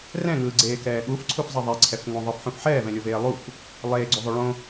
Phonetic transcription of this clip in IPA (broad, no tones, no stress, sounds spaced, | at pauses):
r ɛ̃ ŋ ɯː ɡ͡ǀ eː k ɛː ɠ u f ǀʰ u f zˤ ʌ ðˤ e ǀʰ ɛ f ŋ õ ðˤ ɯ f ħ ũ f ħ ɛː v ɛ̃ lʲ o v eː lˠ u f | lˠ eː ɡ͡ǀ u ðˤ o ɭ õ